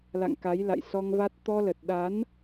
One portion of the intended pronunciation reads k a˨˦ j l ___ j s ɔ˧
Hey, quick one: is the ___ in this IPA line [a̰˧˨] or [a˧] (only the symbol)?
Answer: a̰˧˨